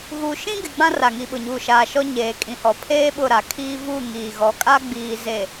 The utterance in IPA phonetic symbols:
ɣu˨ʃĩ˦ɡɪ˨ ɡ͡bã˦ra˨ŋi˨ɓʊ˨ ɲuː˨ʃaː˨ ʃɔ˦ ɲeː˨kʼĩ˨hɔ˨pʰeː˦ ɓʊ˦˨ɾa˨kʰiː˦ vu˦˨ŋiː˨ɣɔ˨kʼa˦ ɡ͡biː˨ze˨

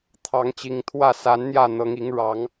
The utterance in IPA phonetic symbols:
t̪ʰɑ˨˦ŋt͡ɕi˨˩ŋt̪ʰwä˥˨ sa˨˦n n̪jä˥˨n̪ɤ˨˦ŋi˨˦ŋ ɻɑ˨˦ŋ

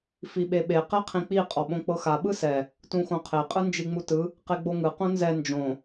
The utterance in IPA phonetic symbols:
fiɓeɓe qɛqʰĩk͡pi qʼɔɓõk͡pɤxa ɓɯsɛ | tũxõqʰe qʼɯnd͡ʒiŋ͡mutɯ | qeɡ͡boŋɯ qũnzɛ nd͡ʒõ

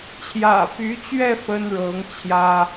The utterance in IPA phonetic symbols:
t͡ɕʰjä̰˨˩py˧˥t͡ɕɥɛ˥˩ fə˥nɻɤ˧˥ŋ t͡ɕʰjä˥

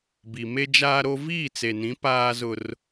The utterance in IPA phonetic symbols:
bi˨me˦d͡ʒaː˦ɾo˦ viː˦˨t͡se˨nĩ˨˦ paː˦zʊ˦r

